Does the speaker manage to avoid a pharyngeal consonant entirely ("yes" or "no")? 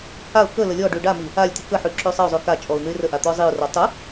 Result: no